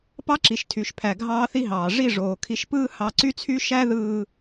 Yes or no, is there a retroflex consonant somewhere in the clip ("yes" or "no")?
yes